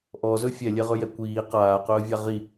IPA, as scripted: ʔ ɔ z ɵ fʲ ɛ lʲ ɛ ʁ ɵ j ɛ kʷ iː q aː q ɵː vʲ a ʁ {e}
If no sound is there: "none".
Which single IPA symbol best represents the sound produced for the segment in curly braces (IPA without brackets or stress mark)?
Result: i